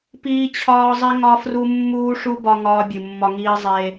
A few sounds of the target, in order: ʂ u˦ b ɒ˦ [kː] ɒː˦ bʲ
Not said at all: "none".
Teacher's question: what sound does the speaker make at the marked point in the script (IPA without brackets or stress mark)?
ŋ